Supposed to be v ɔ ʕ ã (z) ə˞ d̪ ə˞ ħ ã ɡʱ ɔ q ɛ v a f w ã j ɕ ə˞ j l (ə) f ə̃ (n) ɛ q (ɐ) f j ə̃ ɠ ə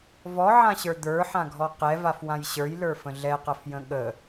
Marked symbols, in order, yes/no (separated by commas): no, no, no, yes